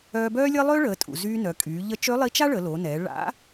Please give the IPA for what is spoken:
œː˧ b œː˥ lʲ əː˥ lˠ ø˥ ɭ əː˩˧ tʼ ṵ˩ z yː˧ n œ˩˧ kʼ yː˩˧ ʎ ə˧˥ t͡ʃ ø˧˥ lˠ i˧˥ t͡ʃ a˥ ɭ ə˩˧ l o˩˧ n ɛː˩˧ ɭ a̰˧˥

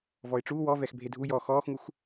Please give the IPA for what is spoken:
v ɔ ɪ̯ ʈ͡ʂ u w ɔ v ɛ x bʱ e dʱ u j ɔ x ɔː x ŋ u x

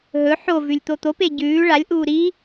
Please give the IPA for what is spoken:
ɦ ɵ ħ o v ʉ lʲ t̪ o t̪ o p e ɟ ʉː ɭ a lʲ ʔ uː ɾ i

